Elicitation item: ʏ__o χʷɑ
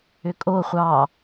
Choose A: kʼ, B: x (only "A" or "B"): A